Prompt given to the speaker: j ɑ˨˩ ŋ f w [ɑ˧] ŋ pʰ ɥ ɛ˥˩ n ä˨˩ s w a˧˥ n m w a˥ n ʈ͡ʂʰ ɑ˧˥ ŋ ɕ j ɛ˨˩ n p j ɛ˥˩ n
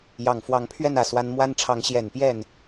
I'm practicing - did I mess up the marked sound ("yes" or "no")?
yes